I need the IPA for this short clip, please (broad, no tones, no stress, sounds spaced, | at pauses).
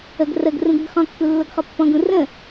ə ɡ r ə ɡ r ũ ɡ ə ɡ χ ɔ̃ kː u lː o ɡ χ ɔ pː ɔ̃ ɡ ũ r ə̃